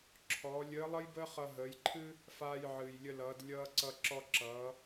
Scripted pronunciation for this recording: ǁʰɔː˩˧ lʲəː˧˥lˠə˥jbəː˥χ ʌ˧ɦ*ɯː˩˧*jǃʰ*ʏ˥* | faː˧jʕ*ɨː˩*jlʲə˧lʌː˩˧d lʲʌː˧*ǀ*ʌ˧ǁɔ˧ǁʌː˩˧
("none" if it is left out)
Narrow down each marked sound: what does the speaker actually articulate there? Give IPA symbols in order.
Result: əː˩˧, ɨ˥, ɨː˩, ǀ

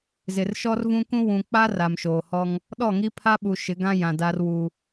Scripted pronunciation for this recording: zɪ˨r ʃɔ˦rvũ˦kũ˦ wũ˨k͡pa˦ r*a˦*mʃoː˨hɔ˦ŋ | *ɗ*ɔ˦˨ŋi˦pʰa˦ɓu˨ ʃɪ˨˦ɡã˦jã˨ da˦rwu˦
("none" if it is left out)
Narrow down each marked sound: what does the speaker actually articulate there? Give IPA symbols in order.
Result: a˨, ɗ

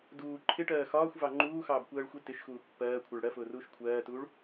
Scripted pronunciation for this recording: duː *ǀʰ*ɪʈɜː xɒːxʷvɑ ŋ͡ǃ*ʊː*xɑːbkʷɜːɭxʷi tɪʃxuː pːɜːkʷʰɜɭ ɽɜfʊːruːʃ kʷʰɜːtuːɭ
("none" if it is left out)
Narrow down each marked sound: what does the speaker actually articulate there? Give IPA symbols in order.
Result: ǃʰ, uː

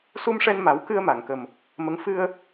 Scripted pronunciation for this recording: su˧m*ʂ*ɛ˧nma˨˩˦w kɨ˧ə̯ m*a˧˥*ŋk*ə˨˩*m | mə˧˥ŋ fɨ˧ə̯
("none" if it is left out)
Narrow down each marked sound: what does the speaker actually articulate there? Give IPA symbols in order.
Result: ʂ, a˨˩˨, ə˨˩

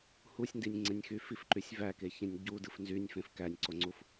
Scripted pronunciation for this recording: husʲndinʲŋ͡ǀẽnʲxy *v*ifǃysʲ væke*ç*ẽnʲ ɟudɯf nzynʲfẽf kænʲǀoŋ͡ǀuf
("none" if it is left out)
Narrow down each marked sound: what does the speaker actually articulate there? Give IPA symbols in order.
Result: f, ç

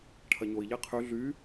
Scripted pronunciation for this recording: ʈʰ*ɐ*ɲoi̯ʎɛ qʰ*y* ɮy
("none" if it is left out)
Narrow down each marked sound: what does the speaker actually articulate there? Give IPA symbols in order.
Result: ɐ, y

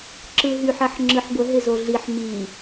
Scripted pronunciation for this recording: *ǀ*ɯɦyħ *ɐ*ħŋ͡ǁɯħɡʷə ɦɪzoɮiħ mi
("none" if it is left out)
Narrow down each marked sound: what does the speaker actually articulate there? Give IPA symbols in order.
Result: ǁ, ɐ

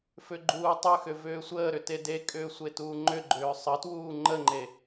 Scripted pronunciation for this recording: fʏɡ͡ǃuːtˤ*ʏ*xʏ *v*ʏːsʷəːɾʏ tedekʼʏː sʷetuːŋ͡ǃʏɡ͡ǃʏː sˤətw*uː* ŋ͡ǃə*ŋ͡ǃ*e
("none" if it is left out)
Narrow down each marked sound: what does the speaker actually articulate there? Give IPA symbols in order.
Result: ʏ, v, uː, ŋ͡ǃ

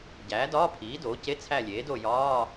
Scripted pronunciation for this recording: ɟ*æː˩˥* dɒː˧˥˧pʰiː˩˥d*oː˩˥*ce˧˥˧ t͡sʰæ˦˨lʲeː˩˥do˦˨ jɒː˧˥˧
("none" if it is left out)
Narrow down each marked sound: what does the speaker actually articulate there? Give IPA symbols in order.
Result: æː˩˥, oː˩˥

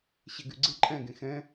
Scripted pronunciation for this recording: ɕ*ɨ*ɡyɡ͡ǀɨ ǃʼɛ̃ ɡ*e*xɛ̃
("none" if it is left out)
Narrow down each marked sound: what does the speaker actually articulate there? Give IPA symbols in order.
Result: e, ẽ

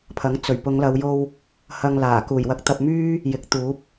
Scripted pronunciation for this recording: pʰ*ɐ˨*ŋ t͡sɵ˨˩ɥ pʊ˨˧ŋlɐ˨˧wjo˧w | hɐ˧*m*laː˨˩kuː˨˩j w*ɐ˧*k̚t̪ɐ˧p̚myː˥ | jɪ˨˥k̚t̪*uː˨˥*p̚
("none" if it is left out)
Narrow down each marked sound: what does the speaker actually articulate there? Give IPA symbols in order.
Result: ɐ˨˥, ŋ, ɐ˧, uː˨˥

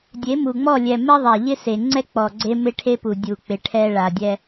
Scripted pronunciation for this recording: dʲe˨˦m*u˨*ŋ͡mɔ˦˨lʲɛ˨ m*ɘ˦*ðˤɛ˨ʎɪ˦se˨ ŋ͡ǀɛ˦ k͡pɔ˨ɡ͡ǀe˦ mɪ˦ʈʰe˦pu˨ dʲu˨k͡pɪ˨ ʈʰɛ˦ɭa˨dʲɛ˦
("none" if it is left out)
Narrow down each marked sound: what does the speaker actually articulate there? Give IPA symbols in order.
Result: u˨, ɛ˦

